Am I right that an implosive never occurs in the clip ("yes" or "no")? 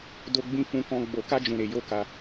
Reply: yes